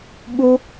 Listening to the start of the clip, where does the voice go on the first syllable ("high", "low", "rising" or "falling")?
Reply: high